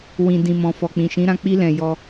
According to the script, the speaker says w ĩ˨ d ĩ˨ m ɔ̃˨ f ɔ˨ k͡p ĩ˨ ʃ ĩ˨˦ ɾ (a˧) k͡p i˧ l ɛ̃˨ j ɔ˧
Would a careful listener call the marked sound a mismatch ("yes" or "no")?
yes